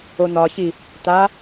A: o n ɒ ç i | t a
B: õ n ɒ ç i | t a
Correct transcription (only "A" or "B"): A